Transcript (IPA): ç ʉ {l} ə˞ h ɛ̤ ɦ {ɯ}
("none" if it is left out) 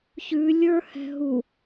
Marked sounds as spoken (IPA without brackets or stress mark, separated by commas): lʲ, u